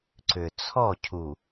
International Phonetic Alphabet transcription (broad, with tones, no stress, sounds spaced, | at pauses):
ǀ ʏ˨ t͡sʰ ɔ˦˨ cʰ u˨